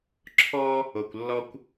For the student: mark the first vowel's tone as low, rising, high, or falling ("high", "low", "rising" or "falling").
high